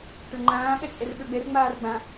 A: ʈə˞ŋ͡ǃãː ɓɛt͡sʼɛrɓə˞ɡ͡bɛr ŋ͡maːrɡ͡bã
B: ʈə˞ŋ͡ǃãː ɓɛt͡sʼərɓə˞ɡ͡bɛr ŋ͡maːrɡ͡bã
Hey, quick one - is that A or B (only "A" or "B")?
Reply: A